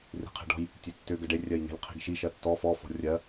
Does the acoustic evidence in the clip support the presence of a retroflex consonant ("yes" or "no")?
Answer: yes